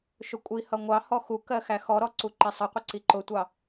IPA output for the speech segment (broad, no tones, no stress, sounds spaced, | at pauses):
ʃ ʊ kʷʼ i h ʌ ŋʷ ɑ h ɔ x u k ɜ x æ x ɔ ɾ ɔ ǀ u ǃ ɛ sˤ ʌ qʷ ə ǀ i ǃ ʊ tʷ ɑ